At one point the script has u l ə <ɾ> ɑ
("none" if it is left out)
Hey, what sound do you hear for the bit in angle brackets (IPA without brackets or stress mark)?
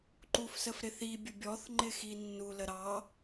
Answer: ɾ